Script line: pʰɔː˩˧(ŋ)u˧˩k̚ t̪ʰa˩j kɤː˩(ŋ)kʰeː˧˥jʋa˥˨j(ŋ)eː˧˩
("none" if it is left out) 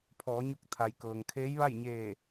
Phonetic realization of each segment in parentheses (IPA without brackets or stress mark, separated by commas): ɲ, ŋ, ɲ